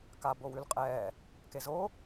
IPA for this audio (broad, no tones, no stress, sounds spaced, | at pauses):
k a b o w ʉ l qʼ ɛː | k e z o